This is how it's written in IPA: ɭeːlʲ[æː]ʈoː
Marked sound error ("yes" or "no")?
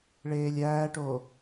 no